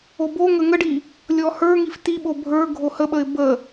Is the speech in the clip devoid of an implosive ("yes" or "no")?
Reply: no